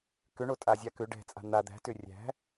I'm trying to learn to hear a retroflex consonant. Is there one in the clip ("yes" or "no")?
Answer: yes